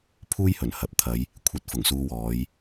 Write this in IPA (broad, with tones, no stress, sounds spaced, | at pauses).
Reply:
pʰ uː˥ j h ɵ˨˩ n h ɐ˨ p̚ t̪ʰ ɐ˨˧ j | kʷʰ ɐ˧ t̚ f ʊ˨˩ ŋ s uː˧ w ɔː˨˧ j